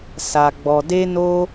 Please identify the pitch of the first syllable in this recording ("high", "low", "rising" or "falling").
low